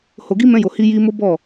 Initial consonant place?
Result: glottal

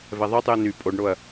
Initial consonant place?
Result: labial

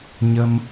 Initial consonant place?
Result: palatal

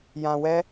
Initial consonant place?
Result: palatal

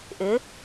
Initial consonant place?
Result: glottal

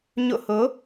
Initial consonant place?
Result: palatal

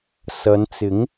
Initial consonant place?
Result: alveolar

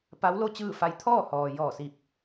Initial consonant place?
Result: labial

